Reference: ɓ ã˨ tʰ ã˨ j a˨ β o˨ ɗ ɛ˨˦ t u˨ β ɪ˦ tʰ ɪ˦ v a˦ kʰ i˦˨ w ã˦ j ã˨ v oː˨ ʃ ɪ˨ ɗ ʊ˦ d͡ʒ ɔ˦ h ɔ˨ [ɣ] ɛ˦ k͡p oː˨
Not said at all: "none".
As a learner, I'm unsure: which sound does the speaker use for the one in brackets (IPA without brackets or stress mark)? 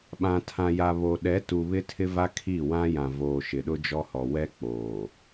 w